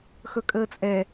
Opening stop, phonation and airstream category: ejective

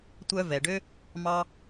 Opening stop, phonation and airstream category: plain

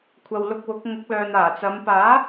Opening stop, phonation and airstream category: aspirated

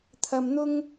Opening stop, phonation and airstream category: aspirated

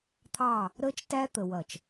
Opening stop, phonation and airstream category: aspirated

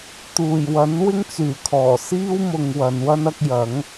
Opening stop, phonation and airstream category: plain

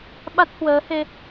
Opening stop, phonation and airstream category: implosive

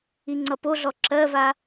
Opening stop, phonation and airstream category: click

